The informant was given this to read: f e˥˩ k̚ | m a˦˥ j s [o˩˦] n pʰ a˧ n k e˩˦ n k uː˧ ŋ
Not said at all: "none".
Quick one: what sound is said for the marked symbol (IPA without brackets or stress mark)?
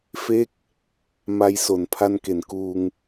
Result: o˩˦